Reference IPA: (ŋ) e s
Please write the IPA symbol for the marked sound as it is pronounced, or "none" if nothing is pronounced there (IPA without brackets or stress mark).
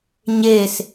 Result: ɲ